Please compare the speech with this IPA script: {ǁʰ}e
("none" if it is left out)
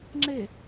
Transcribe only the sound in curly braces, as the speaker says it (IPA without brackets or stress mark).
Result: ŋ͡ǁ